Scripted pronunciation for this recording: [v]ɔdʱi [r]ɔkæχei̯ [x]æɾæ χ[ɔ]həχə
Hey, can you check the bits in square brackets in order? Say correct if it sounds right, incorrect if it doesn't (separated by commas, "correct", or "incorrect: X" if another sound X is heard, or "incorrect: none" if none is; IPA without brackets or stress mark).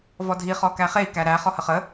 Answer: correct, incorrect: χ, incorrect: k, correct